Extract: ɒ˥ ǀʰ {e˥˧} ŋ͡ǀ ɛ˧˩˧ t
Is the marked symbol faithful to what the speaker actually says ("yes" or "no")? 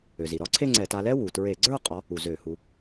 yes